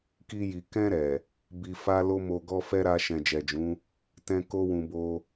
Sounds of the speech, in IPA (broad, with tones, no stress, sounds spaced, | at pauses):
k i˧ j i˨ k ɛ̃˧ ɾ ɛ˨ | b i˧ f a˦ l o˦ m o˧ ɡ ɔ˦ f ɛ˦ ɾ a˧ ʃ ɛ̃˨ d͡ʒ ɛ˨ d͡ʒ ũ˨˦ | t ɛ̃˧ k o˦ w ũ˧ b o˧